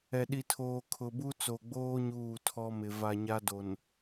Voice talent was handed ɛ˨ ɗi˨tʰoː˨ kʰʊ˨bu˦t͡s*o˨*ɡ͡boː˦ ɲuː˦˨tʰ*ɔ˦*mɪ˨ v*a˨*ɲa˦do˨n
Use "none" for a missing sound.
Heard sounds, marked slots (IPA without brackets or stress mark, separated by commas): o˨, ɔ˦, a˨